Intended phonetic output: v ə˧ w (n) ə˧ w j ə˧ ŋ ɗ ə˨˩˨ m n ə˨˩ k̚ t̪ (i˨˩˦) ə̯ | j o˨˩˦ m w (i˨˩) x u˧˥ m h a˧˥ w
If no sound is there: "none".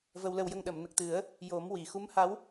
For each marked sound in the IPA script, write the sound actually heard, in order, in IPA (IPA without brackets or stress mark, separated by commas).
l, ɨ˨˩˦, i˨˩˨